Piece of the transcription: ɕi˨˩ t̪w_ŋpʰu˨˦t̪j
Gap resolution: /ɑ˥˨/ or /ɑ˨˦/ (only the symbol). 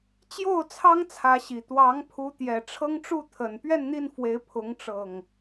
ɑ˨˦